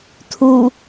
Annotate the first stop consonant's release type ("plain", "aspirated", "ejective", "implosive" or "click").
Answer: aspirated